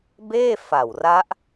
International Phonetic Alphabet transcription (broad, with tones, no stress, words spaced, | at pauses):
beː˥˩fa˨˩wra˦˥ʔ